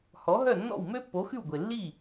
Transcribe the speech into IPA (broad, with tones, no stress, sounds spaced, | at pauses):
h ɔ˩˥ ɦ œ˥˩ nː ɔ̰˥˩ w m ø˥ pː o˩˥ x ʉ˥˩ w ɡʷ e˩ lː i˥˩